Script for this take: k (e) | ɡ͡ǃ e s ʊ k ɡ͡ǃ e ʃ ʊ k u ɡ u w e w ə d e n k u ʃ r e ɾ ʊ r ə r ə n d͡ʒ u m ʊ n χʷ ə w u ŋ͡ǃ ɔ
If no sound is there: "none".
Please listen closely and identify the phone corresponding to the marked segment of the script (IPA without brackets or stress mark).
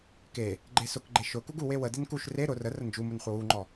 e